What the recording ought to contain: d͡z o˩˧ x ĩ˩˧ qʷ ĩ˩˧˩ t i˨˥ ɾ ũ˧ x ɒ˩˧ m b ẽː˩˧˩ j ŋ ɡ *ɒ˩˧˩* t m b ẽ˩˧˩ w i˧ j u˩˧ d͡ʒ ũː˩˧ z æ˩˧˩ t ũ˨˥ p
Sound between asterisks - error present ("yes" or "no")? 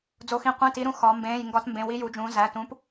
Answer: yes